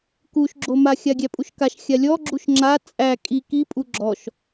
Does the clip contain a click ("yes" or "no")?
yes